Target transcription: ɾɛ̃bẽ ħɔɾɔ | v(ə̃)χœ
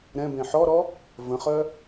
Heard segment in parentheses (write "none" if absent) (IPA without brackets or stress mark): ə̃